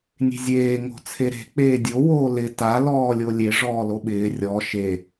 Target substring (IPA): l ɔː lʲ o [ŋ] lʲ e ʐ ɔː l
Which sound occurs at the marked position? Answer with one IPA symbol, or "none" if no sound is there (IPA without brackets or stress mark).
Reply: none